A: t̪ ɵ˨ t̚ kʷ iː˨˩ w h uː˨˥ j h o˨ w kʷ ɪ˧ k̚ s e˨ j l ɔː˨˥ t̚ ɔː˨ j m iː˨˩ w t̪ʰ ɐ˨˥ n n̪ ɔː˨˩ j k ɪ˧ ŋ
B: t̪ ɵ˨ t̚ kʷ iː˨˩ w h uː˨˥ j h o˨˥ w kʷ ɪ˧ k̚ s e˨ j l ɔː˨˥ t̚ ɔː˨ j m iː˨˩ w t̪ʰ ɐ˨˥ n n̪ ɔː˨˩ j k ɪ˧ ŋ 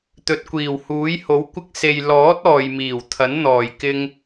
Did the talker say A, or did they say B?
B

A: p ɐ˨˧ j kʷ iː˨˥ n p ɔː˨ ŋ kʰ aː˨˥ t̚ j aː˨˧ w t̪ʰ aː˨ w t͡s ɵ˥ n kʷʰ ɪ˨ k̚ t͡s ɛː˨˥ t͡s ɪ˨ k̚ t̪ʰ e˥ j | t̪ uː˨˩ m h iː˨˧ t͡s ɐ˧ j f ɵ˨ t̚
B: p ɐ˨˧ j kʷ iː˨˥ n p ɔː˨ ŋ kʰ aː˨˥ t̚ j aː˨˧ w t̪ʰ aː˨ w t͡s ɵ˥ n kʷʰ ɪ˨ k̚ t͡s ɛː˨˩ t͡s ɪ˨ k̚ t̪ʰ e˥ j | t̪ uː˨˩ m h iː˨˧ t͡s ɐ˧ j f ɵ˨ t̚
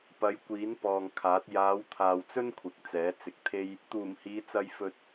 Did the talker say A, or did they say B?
A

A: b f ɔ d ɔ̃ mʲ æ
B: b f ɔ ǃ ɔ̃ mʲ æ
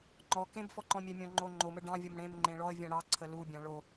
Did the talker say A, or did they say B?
B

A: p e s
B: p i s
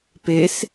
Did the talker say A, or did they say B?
A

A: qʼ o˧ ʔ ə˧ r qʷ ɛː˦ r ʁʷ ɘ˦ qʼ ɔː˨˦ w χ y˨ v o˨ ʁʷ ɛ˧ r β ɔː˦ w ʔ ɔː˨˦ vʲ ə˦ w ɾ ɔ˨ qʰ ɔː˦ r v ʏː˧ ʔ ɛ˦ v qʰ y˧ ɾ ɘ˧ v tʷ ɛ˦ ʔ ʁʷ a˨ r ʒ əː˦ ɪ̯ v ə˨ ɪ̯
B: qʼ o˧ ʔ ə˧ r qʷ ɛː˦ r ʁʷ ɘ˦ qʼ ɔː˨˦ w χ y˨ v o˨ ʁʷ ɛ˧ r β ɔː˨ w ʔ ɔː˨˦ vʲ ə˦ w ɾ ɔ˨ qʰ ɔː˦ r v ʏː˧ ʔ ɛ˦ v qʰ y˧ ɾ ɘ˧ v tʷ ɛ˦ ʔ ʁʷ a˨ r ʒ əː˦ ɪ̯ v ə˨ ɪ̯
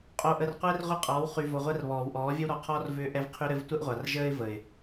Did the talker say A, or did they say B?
B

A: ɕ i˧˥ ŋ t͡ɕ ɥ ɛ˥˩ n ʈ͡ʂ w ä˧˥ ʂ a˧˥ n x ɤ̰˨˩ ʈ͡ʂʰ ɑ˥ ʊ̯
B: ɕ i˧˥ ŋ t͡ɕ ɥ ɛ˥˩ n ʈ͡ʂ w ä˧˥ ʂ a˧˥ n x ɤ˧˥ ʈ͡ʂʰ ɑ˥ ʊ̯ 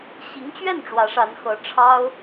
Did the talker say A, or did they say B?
B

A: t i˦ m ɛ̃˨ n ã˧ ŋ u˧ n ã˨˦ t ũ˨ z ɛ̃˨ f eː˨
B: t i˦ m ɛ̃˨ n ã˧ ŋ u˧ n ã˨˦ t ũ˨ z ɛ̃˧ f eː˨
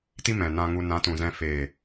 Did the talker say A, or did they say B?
B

